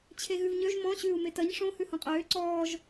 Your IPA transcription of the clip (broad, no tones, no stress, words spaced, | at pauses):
t͡ɕʰeɣʉvɲøʒ mɔ̃ ɕʉːu̯metɐɲ ʂõ hʉhõqʼøː ǀɔːʒ